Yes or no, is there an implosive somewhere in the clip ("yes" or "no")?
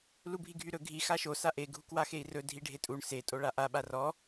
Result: yes